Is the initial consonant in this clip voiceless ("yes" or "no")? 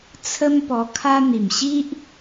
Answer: yes